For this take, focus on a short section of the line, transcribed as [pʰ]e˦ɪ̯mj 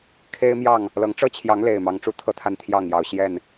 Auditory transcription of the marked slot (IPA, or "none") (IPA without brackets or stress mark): kʰ